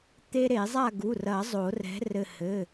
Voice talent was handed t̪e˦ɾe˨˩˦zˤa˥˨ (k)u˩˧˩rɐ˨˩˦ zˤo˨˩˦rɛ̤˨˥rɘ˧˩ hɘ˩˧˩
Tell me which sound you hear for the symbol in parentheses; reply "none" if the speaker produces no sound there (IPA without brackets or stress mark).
ɡ